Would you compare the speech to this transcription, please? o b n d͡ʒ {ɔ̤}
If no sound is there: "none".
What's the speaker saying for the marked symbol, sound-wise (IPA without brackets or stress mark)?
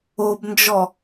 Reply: ɔ